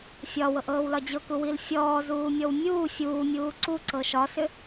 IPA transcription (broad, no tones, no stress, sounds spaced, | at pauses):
fʲ ɒ w ɤ ʔ ɤː w l ɒ d͡ʑ ɤ k u w i l fʲ ɔː z uː mʲ ɔ w mʲ uː fʲ uː mʲ uː ǀ u ǀ ɤ ʃ ɒ s ʏ